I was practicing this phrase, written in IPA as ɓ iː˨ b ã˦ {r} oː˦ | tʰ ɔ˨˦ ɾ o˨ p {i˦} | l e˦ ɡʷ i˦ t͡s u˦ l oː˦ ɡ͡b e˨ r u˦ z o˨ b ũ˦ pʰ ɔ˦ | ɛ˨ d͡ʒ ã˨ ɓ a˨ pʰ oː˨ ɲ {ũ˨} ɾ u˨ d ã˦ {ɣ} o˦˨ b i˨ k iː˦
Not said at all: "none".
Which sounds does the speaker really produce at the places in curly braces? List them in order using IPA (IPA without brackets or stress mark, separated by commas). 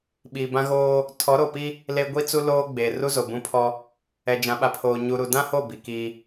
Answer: ɣ, i˦, u˨, h